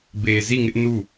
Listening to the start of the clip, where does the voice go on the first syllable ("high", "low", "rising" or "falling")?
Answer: low